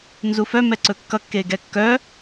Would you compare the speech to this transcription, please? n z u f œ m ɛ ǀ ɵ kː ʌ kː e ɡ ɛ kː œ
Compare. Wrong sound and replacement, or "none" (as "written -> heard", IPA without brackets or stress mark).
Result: none